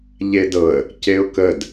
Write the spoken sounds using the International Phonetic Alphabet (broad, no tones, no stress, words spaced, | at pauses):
ʎedɤə̯ | ceʊ̯kəd